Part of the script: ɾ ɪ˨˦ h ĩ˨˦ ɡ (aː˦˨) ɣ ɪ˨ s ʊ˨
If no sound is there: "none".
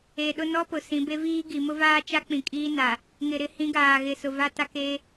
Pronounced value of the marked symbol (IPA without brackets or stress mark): aː˨